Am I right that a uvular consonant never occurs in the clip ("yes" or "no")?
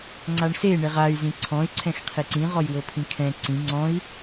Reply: no